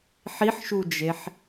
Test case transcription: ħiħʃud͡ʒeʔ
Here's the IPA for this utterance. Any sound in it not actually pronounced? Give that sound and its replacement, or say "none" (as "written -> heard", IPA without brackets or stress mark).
ʔ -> ħ